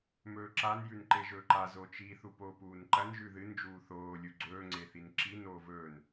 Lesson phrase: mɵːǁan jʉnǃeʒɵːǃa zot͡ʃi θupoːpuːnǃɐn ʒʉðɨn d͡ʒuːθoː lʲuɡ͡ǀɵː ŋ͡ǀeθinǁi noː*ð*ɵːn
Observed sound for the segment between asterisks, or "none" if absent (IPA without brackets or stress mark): v